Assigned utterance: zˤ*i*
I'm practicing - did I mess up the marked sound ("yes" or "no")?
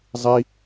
no